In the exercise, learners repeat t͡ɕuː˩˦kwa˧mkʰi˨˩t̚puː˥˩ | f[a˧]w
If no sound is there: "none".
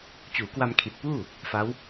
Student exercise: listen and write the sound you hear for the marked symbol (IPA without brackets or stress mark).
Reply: a˦˥